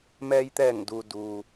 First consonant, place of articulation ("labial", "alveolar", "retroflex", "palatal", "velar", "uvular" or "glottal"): labial